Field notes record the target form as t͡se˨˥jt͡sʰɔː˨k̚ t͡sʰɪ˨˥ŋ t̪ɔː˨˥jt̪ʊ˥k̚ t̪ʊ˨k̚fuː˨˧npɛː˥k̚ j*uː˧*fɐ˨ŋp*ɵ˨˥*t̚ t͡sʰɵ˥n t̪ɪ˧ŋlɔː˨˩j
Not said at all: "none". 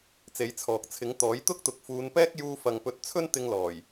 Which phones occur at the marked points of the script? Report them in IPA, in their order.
uː˧, ɵ˨˥

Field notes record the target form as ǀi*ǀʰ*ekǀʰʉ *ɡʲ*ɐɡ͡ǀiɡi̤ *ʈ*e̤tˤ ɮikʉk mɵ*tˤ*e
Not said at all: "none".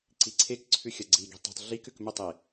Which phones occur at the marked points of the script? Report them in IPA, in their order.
ǀʰ, xʲ, tˤ, tˤ

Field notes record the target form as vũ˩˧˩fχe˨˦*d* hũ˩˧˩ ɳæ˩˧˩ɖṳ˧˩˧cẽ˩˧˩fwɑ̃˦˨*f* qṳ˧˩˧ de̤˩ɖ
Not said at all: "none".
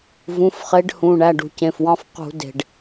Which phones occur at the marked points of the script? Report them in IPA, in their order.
ɖ, f

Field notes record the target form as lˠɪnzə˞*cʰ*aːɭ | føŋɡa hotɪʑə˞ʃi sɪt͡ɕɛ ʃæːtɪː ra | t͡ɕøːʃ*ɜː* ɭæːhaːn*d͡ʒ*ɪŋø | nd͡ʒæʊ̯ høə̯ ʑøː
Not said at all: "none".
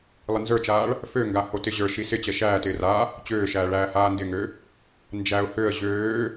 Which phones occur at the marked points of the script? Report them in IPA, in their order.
t͡ʃ, æː, d

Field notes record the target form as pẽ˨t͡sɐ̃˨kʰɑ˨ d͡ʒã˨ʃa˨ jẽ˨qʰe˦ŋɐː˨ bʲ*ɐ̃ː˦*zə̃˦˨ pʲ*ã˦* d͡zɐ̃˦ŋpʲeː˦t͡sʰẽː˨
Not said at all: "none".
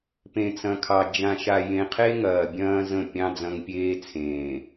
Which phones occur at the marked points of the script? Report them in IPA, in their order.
ɐ̃ː˦, ɑ̃˦

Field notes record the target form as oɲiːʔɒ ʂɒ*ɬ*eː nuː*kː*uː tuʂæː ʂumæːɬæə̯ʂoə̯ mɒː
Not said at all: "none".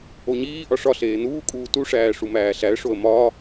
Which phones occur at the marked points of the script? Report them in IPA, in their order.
ɬ, kʼ

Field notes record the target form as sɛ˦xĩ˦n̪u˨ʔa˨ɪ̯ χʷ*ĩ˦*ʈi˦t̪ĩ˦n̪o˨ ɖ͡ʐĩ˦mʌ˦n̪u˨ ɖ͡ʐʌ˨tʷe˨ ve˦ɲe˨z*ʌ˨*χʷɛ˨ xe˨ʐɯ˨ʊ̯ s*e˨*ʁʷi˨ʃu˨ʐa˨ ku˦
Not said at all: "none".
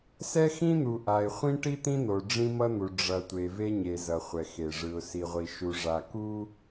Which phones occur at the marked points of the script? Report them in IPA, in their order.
ĩ˦, ʌ˨, i˨

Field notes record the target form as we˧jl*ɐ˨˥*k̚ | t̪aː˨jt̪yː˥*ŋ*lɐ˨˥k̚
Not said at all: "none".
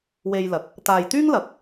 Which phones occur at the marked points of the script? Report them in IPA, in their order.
ɐ˨, ŋ

